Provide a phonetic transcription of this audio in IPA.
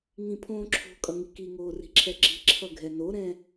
ŋ ĩ pʰ õː ǁʰ o̤ kʼ ʌ ŋ i k i ŋ oː r i̤ ǁʰ ɛ ǁ i̤ ǁʰ ʌ ɡʱ ɛ n o ɾ ɛ̃

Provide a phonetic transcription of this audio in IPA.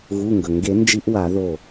ɣ u˩˧˩ ŋ ɡ ɵ˩ ŋ ɡ e˨˩˦ n d͡ʒ i˧˥ ʔ w a˨˩˦ ð o˧˩

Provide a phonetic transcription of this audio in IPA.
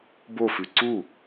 b o f ʉ ǀ u

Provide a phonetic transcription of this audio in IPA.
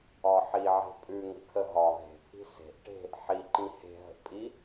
ɒ ħ i ʕ e̤ pʼ ʉ ŋ ə̤ kʰ ə ɦ ɒ ɦ e̤ pʰ i̤ s e̤ ʔ ʈ e̤ | ħ i ǃ ĩ h e̤ ɦ ə̤ ʔ pʼ i

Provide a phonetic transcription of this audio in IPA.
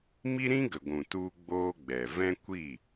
m i˦ ɾ ĩ˦ ɡ ə˨ ɡʷ ũ˨ t u˦ ɡ͡b oː˦ ɡ͡b ɛ˨ v ɛ̃˦ kʷ i˦˨

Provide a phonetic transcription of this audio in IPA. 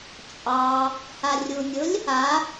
t͡ʃʼ ɑ | h a rʲ u nʲ ʊ lʲ | a

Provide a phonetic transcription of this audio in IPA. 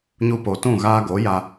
ɲ u˧ p o˨ t ũ˦˨ ɣ aː˧ ɡ o˨˦ j a˧

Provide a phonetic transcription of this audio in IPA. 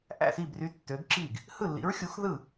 ʔ æ̰˥˩ s i˥˩ b r y˨˥ tː ø˨˥ ɡ ǁ i˥˩ ɡ | h ɯ˥˩ lː ḭ˨˥ ɹ xʲ u˨˥ x ð ɯ˥˩

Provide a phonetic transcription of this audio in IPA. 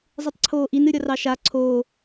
zˤ ɨ tˤ ǀʰ oː ʔ i n ɨ ɾʲ ʌ r ɑ ʃ a ǀʰ oː

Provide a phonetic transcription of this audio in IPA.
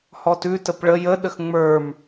h ɔ t ʉ t ə p ɭ ə j ə ɗ ə x ŋ͡m ə˞ m

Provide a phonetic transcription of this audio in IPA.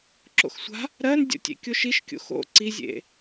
ǁ o̰ x sʷ a̤ | ɾ ɜ n dʲ o̰ tʲ ḛ kʲ o ʃ i ʃ kʲ o̰ x o̰ ǀ i zʲ ḛ

